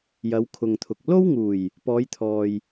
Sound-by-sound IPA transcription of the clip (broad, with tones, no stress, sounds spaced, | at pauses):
j ɐ˨˧ w kʰ ʊ˨ ŋ t̪ʰ ʊ˨ k̚ l o˥ w ŋ uː˨˩ j | p ɔː˨˧ j t̪ʰ ɔː˨ j